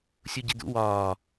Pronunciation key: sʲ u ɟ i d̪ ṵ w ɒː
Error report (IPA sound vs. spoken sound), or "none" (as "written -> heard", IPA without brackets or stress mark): none